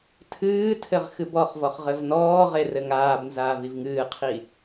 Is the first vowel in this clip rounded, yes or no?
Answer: no